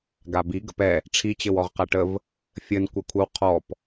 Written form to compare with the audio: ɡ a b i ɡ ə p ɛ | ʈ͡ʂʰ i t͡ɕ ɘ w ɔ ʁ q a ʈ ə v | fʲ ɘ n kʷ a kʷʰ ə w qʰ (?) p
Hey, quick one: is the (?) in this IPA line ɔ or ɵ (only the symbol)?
ɔ